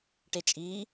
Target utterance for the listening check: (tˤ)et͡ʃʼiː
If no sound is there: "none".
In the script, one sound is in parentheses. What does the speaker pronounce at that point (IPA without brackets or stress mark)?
ʈ